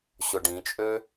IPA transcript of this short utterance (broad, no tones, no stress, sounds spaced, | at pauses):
ɕ ʊ ɖ ĩ t͡ʃʼ ø